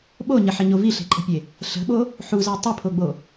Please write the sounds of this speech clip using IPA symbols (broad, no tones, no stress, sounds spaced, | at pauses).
ɓ o ɲ ə ħ ə ɲ o v i ɬ e̤ ǃʼ ə̤ pʲ e | ɬ ə̤ ɓ o | ħ u z æ tˤ ə pʰ o ɡ͡b o